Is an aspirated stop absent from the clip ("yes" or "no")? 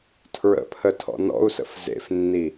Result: no